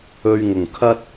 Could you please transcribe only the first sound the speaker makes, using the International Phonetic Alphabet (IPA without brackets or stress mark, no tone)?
ɵ